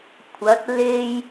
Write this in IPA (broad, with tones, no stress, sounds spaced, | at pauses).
kʷʰ ɐ˨˥ t̚ l e˧ j